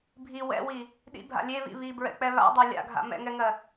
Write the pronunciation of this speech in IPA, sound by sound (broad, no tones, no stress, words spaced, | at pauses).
bʱi wɛ̰wi | ɗḭbʱa̰ lʲeβḭ βibɹɛ̰k͡pɛ βa̰dˤa lʲa̰ɡʱa̰ mɛ̰ŋɛŋɜ